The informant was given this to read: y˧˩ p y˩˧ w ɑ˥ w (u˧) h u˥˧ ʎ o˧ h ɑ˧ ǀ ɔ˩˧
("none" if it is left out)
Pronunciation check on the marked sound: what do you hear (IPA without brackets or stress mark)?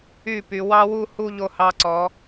u˥˧